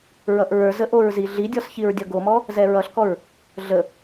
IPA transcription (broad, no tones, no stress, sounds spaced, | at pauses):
ɹ ʌ ʔ ɹ ə˞ z ə ʔ o ɹ z i ɮ i dʲ ɔ s ç i ɹ dʲ ʌ ɡ o m ɔ | z ɛ ɹ ʌ ɬ k ɔ ɹ | ɮ ə